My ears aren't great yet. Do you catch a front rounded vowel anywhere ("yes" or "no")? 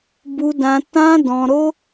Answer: no